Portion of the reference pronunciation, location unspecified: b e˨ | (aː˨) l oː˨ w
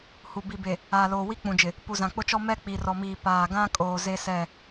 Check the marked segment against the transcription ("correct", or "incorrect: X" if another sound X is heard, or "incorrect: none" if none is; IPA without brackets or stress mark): correct